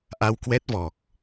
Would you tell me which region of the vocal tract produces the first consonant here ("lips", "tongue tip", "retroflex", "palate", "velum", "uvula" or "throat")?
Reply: throat